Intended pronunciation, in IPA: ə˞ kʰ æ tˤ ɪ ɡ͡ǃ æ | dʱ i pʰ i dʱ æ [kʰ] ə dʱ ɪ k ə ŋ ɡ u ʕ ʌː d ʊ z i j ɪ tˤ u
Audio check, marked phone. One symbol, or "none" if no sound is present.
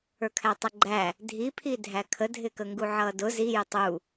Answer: kʰ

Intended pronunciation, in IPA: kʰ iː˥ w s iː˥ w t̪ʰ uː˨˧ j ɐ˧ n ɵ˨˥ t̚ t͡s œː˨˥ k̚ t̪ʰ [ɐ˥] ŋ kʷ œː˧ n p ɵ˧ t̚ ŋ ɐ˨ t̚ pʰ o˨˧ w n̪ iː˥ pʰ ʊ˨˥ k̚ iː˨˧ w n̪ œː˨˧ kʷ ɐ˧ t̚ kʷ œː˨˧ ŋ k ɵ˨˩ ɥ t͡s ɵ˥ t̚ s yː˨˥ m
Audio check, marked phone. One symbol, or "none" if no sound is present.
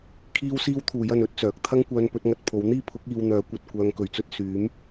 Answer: ɐ˥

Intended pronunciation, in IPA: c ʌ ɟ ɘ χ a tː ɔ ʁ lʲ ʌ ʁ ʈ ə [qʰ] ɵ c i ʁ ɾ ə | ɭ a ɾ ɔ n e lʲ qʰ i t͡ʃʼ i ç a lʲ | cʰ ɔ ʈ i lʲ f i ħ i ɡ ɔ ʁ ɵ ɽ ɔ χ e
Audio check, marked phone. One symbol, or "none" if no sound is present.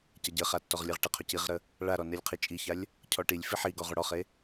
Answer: qʰ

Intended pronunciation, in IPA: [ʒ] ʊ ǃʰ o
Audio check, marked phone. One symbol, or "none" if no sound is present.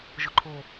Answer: ʒ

